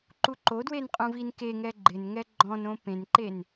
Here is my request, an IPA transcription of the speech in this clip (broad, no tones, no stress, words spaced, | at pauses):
ǃuǃodwen qʼũvinkeŋɛ ɡ͡ǃɪn ŋɛɡ͡ǃɔ̃nõ pẽnǃen